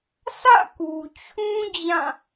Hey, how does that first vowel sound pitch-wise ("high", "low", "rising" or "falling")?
falling